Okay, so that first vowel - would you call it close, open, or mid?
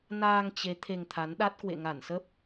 open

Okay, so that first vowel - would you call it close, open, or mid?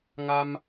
open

